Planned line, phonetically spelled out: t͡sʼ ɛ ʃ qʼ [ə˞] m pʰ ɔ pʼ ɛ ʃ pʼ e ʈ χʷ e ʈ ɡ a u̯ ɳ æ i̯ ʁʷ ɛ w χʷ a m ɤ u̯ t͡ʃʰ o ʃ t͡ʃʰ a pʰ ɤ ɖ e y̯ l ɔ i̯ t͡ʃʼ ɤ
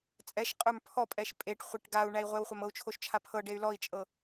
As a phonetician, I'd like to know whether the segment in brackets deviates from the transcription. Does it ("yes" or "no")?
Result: no